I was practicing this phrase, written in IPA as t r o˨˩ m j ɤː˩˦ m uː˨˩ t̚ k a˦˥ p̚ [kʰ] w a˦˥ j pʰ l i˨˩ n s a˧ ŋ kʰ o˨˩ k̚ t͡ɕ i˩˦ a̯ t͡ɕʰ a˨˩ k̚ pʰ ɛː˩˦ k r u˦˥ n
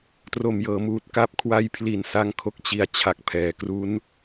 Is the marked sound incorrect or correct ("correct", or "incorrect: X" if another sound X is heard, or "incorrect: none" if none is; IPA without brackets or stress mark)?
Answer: correct